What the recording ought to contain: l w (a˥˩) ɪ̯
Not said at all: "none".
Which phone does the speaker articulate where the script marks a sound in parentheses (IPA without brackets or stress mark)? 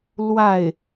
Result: a˥˩